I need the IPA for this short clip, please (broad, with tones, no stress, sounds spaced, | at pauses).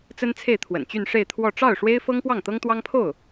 t͡s ə˥ n t͡sʰ e˥˩ ɪ̯ t̪ʰ w ə̰˨˩ n t͡ɕ y˥˧ n ʂ e˥˧ ɪ̯ t̪ʰ w ɔ˥˧ ʈ͡ʂ ɑ˥˩ ʊ̯ ʂ w e˥ ɪ̯ f ɤ˥ ŋ p w ɑ˥˩ ŋ t̪ ɤ˥ ŋ t̪ w ɑ˥ ŋ pʰ o˥˩ ʊ̯